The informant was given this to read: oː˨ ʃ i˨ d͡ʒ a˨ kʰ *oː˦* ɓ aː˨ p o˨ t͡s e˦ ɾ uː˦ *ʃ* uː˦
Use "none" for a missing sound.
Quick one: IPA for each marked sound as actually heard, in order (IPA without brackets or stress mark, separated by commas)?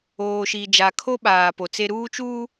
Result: o˦, t͡ʃ